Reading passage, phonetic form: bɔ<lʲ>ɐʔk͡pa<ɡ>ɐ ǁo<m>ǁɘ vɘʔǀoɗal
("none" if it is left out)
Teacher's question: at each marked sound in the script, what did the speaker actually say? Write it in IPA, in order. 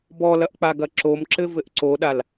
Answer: l, ɡ, m

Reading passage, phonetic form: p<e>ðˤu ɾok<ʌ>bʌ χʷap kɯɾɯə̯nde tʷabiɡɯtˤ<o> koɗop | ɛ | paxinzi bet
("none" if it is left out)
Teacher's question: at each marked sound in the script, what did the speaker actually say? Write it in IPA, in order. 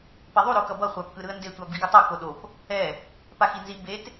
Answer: e, ʌ, o

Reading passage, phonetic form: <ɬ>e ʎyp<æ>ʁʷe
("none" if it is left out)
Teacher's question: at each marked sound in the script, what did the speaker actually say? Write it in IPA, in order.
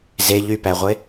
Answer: z, æ

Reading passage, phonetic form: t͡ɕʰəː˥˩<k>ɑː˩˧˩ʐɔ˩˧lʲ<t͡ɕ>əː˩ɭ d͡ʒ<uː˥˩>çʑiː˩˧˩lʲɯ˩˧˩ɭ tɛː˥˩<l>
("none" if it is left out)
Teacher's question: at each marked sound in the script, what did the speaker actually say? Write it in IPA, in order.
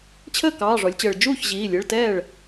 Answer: k, t͡ɕ, uː˥˩, ɭ

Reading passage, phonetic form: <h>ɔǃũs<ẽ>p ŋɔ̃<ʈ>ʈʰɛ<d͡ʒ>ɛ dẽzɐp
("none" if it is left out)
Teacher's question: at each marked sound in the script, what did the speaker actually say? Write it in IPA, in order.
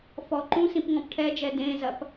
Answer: f, ĩ, p, d͡ʒ

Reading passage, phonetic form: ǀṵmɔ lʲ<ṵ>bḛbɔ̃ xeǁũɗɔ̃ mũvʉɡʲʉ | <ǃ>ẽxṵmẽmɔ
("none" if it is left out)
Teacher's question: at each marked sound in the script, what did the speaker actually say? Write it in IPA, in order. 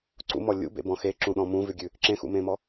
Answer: ṵ, ǁ

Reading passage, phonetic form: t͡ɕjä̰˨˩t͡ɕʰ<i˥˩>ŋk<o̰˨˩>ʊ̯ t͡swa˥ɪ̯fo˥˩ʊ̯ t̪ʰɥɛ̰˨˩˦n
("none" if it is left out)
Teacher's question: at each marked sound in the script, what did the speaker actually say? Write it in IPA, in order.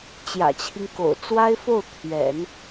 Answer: i˦, o̰˨˩

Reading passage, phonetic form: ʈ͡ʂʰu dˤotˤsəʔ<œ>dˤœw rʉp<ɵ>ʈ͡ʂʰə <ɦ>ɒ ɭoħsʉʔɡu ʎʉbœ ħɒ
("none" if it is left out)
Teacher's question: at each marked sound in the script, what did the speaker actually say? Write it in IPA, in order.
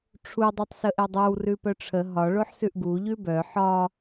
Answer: ɛ, œ, ɦ

